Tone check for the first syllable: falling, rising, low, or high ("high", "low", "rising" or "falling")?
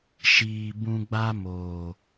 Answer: low